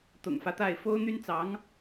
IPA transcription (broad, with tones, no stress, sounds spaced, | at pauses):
t̪ ʊ̰˨˩ ŋ f ä˦ t̪ a˥˩ ɪ̯ f o˥ ʊ̯ n̪ y˥ n t͡s ɑ˧˥ ŋ